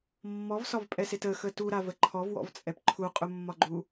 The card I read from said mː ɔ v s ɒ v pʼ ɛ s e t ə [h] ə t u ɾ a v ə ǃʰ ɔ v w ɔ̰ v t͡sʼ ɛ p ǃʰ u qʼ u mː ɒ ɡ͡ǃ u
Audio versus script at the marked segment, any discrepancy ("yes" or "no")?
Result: yes